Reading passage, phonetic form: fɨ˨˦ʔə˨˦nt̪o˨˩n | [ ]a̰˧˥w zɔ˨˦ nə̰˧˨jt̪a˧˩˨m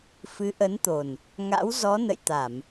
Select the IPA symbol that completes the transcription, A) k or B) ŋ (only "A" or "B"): B